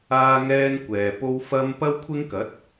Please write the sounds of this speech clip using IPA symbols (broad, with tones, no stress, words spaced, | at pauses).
aː˥ŋɛː˥nkʷɛː˨ po˥wfɐ˥m pɐ˥wkʷʰɪ˥ŋkɐ˨˥t̚